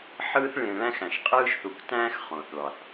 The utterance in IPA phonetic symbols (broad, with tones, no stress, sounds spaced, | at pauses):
ħ ɯː˦ θ ɭ ẽ˨ ɭ æ̃˦ x æ̃˩ ʃ qʼ ɯː˦ ʃ θ u˨ k t æ̃ː˥ x χ õ˩ θ ɭ ɑ˩ θ